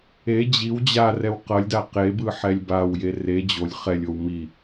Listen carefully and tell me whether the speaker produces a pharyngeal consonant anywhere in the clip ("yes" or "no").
yes